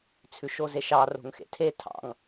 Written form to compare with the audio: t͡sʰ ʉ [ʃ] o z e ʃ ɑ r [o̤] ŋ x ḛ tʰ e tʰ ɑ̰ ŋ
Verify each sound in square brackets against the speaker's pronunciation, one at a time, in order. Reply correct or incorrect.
correct, correct

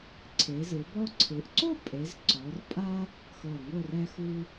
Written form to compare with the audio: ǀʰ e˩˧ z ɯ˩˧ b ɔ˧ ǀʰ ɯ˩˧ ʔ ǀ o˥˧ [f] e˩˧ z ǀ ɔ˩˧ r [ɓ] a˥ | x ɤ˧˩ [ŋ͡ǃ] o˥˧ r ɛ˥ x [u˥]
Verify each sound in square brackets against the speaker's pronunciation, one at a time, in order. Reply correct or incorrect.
incorrect: pʼ, incorrect: pʼ, incorrect: ŋ, correct

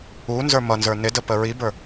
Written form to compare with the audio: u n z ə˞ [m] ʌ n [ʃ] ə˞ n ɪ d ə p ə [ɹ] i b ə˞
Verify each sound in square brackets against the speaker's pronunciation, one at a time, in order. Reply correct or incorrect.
correct, incorrect: z, correct

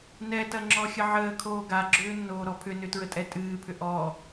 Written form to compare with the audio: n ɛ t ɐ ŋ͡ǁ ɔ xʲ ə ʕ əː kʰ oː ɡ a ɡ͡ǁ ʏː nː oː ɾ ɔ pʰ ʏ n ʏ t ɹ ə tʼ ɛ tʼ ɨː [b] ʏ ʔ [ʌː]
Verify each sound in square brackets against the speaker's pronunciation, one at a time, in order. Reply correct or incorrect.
incorrect: pʰ, incorrect: ɔː

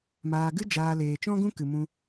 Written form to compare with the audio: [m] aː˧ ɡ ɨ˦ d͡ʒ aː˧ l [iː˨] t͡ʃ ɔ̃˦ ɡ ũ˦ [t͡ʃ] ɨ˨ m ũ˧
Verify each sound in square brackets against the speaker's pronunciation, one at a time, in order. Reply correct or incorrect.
correct, incorrect: eː˨, incorrect: k

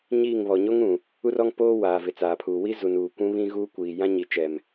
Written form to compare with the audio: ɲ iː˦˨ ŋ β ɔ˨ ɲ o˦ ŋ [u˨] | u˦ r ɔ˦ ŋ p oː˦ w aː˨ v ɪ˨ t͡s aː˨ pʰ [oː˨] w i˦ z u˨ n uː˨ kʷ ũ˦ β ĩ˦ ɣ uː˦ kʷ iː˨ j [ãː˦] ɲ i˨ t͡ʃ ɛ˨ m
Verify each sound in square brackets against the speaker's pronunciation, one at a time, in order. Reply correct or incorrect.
incorrect: ũ˨, incorrect: uː˨, incorrect: ã˦

